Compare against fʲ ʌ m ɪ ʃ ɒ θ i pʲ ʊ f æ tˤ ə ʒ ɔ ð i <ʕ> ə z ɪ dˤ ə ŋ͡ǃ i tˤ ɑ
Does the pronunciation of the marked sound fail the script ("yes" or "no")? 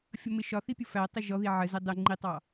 no